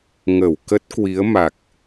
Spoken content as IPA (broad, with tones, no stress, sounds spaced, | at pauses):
ŋ ə˧˩ w k ə˦˥ t̚ k w i˨˦ ə̯ m a˨˩ k̚